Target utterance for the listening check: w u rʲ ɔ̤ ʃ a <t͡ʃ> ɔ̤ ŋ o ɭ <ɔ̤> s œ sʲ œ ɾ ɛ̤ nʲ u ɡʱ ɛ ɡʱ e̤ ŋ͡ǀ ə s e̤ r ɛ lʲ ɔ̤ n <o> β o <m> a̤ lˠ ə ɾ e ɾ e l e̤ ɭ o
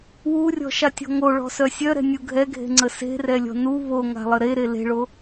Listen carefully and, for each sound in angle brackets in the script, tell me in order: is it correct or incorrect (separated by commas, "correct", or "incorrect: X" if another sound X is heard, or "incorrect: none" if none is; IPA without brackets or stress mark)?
incorrect: tʲ, correct, incorrect: u, incorrect: ŋ